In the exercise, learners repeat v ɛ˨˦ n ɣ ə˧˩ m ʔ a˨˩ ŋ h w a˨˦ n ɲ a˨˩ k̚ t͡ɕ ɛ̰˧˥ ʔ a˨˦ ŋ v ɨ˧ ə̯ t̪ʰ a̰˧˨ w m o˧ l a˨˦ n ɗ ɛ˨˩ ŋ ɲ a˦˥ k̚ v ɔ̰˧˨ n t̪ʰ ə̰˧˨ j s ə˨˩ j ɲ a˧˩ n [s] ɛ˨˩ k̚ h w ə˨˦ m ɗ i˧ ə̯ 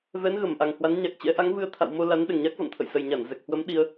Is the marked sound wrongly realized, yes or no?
yes